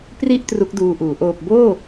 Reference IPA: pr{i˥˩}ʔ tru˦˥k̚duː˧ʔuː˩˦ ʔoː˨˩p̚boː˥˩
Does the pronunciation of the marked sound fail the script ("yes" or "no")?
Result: no